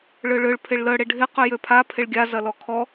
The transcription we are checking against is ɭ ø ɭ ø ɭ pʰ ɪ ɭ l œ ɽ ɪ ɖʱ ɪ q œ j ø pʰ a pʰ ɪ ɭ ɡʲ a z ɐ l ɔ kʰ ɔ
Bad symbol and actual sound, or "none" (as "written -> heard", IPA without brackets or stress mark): none